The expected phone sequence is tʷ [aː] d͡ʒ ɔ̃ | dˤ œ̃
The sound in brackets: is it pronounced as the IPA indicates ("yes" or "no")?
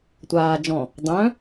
yes